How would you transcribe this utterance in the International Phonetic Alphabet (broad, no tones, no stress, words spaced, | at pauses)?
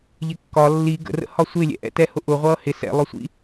ʎɪkːɒ lːi ɡə̰rə̰hɒ sʷɪ lʲɛ̰ʔɛ̰tɛhʊ ʔʊ ʁʷʌːhɪ sɛ̰lˠʊsʷḭ